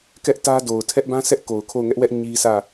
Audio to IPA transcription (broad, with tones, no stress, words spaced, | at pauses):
kɛ˦ʔtä˦do˨ʊ̯ tʰɛ˦ʔbã˦ sɛ˦ʔko˨ʊ̯ kʰo˦˨ʊ̯ŋɛ˦ʔwɛ˦ʔ ɲi˦sʰä˦˨